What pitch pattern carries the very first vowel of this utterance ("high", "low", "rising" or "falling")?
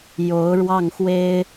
rising